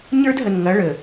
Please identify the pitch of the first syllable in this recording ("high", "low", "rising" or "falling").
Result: high